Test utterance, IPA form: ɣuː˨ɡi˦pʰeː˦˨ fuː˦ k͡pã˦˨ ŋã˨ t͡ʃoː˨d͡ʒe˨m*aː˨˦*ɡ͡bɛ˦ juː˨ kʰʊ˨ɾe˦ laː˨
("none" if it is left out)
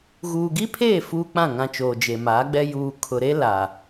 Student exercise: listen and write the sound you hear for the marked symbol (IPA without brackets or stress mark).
aː˨˦